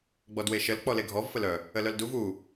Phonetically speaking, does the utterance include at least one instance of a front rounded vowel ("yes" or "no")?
yes